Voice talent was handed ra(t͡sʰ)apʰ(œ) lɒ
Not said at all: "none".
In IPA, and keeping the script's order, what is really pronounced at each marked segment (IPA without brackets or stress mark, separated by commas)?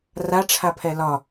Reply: ʈ͡ʂʰ, ɛ